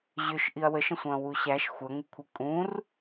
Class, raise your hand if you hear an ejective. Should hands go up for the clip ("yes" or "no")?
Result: yes